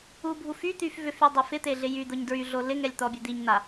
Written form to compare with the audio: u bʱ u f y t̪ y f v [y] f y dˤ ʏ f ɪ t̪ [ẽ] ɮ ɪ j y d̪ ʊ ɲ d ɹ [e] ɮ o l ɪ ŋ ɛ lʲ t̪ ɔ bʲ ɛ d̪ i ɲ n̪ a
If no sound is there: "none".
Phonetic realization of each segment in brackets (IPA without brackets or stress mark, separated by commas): ʏ, e, y